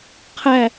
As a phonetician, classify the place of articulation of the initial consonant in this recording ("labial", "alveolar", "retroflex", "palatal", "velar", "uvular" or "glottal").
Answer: uvular